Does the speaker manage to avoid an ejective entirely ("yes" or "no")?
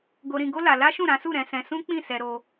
yes